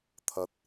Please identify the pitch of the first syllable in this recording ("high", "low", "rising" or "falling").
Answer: low